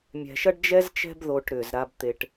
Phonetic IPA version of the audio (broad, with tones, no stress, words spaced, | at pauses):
mʲɛ̤˨ʃɐ˥ɖd͡ʒɛ˥zt͡ʃɛ̤˦b ðo˨ʈ ɾʏː˩zɾa˨bt̪e˨ʈ